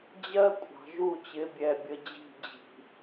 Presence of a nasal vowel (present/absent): absent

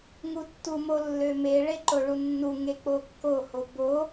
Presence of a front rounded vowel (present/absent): present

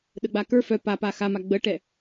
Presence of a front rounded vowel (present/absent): present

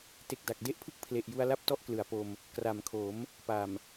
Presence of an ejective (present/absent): absent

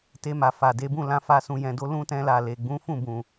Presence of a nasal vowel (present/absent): present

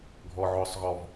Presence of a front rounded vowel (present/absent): absent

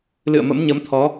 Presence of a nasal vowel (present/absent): absent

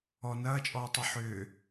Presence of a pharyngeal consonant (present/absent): present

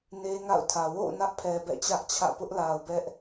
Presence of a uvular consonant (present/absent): absent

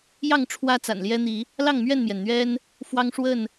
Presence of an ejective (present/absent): absent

